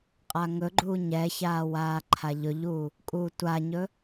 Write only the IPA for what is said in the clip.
qʼaŋɵɡ͡ǃuː ɲɛçaː waːǃʰaʎɵʎuː | kʼuːtʷaɲɵ

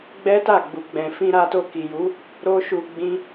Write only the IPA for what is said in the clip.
ɡ͡bɛ˦ta˦˨ɡ͡bu˨ ɡ͡bɛ̃˨fĩ˧ɾa˧to˧ ki˨ju˨˦ | ɾo˦ʃu˧ɡ͡bĩ˦

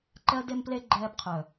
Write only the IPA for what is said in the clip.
ǃɜ˧de˧mple˧ ɡ͡ǃɛː˧bqʰœ˨

